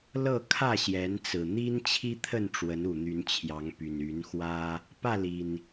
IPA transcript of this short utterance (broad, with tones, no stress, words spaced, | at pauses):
lɤ˥˨ kʰä˥˨ɕjɛ˨˦nt͡sɹ̩˨˩ n̪i˦nt͡ɕʰi˦t̪ʰə˥˨n ʈ͡ʂwə˨˦nu˨˩ n̪y˨˦nt͡ɕʰjɑ˨˦ŋpy˨˩n y˨˦nxwä˦ | pä˥˨li˨˩n